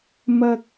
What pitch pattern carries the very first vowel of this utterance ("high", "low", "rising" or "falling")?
high